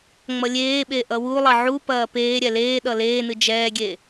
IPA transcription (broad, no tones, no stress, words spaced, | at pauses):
ŋ͡mʌlʲeːɓe ʔʌwulˠʌ ʕu pɐːpeːɾʲɛ leːɗʌ leːnɨ d͡ʒɛːɡʲe